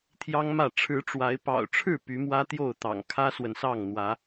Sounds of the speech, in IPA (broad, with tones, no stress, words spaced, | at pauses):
t̪ʰjɑ˦ŋmä˥˨ ʈ͡ʂʰɻ̩˨˦ʈ͡ʂwa˨˦ɪ̯ pɑ̰˨˩ʊ̯ʈ͡ʂʰɻ̩˥˨ py˨˦mwä˦t̪jo˥˨ʊ̯t̪ɑ̰˨˩ŋ kʰä˦swə˨nsɑ˥˨ŋ n̪wä˨˦